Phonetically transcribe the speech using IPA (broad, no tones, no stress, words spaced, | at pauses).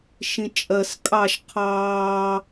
ʃĩt͡ʃʼɜs kʼɑʃ qʰɑː